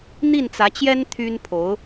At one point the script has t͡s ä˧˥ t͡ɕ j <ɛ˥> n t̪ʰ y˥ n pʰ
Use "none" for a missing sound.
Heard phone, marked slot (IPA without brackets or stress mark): ɛ˥